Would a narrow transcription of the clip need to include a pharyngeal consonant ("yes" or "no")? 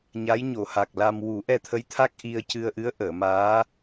no